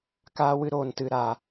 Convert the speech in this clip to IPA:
kaː˧wɨ˧ ɾoː˨ntɨ˨ ɾa˨

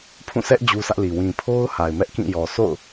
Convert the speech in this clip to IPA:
pʰũ˦˨sʰɛ˦ʔ d͡ʑu˦sä˦ʔli˨ wĩ˨pʰo˦ʊ̯ ha˨ɪ̯mɛ˦ʔkĩ˦˨jɔ˨ so̰˦˨ʊ̯

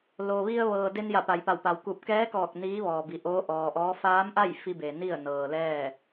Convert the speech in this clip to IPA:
lo˩ʋi˧ə̯ ʋɤː˩de˧n ja˧˩pa˩jpa˧˩wpa˩w ku˧˩p̚ kɛː˧˥kɔː˧˩k̚ niː˧˥ʋɔː˩bi˩ ʔoː˧˥ʔɔː˩ʔɔː˧˥ faː˧˥mʔa˥˨j fi˧be˩ ni˥˨ə̯ nɤː˩ lɛː˥˨

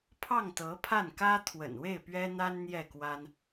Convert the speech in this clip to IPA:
pʰɑ˥˩ŋ t̪ɤ˧˥pʰa˥˩nkä˥ t̪ʰwə̰˨˩nwe˥˩ɪ̯ pɥɛ˥n̪a˥nn̪jɛ˥˩ kwa˥n

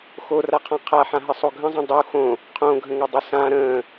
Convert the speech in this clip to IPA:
xoraqʰã qʰaħãɦɘsˤo ɡʱə̃zˤõ dˤu xõ | qʰõɡʱə̃ŋodˤɘ sã ɾə̃ː

